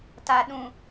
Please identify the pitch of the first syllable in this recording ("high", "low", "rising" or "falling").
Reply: low